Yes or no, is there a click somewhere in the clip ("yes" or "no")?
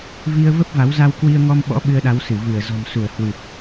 no